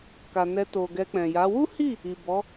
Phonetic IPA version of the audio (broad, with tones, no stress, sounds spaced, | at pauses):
k a˨ n ɛ˧ t o˨ ɡ ɛ˧ k͡p ɛ̃˨ j a˨˦ w u˦ h i˦˨ | i˨ b ɔ˨˦